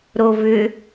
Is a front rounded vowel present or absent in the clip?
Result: present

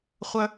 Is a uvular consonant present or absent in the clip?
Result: present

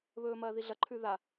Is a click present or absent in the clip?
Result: present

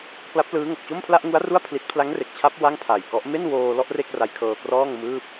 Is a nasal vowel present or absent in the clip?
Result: absent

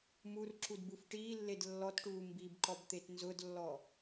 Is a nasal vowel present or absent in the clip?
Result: absent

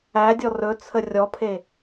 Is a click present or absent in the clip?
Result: absent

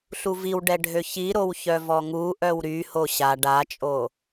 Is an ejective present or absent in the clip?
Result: present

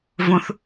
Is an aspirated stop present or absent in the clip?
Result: absent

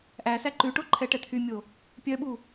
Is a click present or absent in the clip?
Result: present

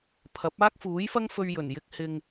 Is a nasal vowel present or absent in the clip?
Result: absent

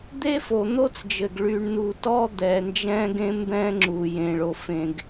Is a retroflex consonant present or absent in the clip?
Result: present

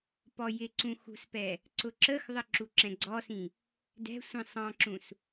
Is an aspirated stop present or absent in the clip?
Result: absent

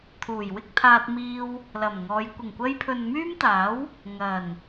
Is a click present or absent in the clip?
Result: absent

